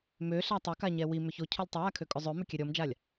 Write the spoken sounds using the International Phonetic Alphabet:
m ø ɬ a tˤ ʏ k a ɲ ɛ w i m ʏ ç o cʰ o lʲ tˤ ʏ w a kʰ ø kʼ ʏ zˤ ø m ʏ kʲ ɛ ɾʲ ɔ m d͡ʒ a lʲ

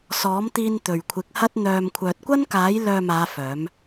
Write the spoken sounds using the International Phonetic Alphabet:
s ɔː˨˥ m t̪ iː˧ n t̪ ɵ˨ ɥ kʷʰ ɪ˨˥ k̚ h ɐ˥ t̚ n̪ œː˧ m kʷʰ œː˨ t̚ kʷ ɐ˥ n k aː˨˥ j l œː˧ m aː˨˧ f œː˨˥ m

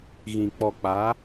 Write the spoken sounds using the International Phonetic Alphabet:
ɣ ĩ˨ k͡p ɔ˨ k͡p a˨˦

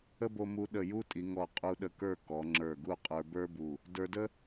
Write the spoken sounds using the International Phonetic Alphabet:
ə˥ b o˧ m u˧ ɗ ə˧˩ j u˥ tʼ i˩˧ ŋ ɔ˧˩ qʼ u˧ ɗ ə˧ k ə˞˥˧ k ɔ˩˧ ŋ͡ǁ ə˞˧˩ ɡ u˥˧ qʼ ə˞˧ b ə˞˥ b u˧˩ | d ə˞˧ d ə˥

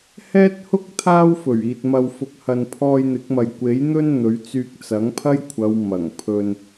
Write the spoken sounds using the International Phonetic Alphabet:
h ɛː˥ t̚ h ʊ˥ k̚ t̪ʰ aː˥ w f ɵ˨˩ ɥ iː˨ t̚ m ɐ˨ w f ʊ˨ k̚ h ɐ˨ n pʰ ɔː˧ j n̪ ɪ˨˥ k̚ m ɐ˨ j kʷ e˨˥ j n̪ ɵ˥ n n̪ ɵ˨˥ ɥ t͡s yː˧ k̚ t͡s ɐ˨˥ ŋ pʰ ɐ˥ j kʷʰ ɐ˨˧ w m ɐ˨˩ ŋ pʰ ɵ˧ n

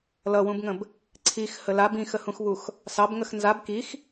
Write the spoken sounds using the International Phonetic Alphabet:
l ʌ w ũ b ŋ ə̃ b | ǀʰ i x h ə l a b ĩ x ə h ũ x β u x | s ɑ b ŋ ə x n z a b k i x

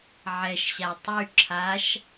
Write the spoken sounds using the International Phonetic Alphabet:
ʕ ɛ ʃ ɕ a tˤ y ǁʰ a ʃ

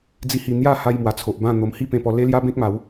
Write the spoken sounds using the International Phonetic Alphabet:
d͡z i˥˧ h i˥˧ n̪ j a˥˧ h a˧ j m w a˨˩ t͡sʰ o˨ ʔ b ã˥˧ n̪ o˧ m h i˥˧ p ẽ˧ p ɔ˧ l e˦ l j a˦ b ẽ˦ k̚ m a˨˦ w

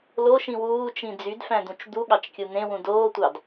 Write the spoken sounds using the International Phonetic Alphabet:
l o ʃ ĩ w uː t͡ʃ ĩ d͡z y d f æ̃ d̪ ũ t͡ʃ d̪ u ɠ ɑ t͡ʃ kʲ ɯ n̪ ẽ w ũ d oː tʷ ɑ d

